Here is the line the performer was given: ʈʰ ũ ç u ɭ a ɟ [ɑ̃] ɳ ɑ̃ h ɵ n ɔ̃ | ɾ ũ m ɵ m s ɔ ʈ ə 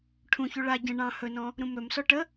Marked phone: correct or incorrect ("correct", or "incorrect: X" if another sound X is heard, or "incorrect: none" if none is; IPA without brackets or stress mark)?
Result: incorrect: ə̃